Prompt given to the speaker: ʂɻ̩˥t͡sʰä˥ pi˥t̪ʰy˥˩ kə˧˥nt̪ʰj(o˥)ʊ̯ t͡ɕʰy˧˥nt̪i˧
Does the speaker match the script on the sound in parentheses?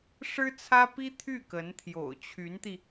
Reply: no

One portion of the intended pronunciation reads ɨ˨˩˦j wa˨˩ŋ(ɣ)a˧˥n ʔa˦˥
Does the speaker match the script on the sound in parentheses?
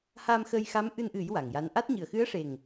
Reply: no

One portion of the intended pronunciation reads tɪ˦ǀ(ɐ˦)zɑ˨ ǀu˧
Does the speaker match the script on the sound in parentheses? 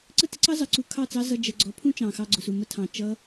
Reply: no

